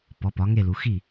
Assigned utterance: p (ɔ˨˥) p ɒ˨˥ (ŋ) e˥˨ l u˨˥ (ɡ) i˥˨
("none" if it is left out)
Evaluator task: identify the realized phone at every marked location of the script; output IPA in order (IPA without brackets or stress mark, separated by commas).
ɔ˨˥, ŋ, x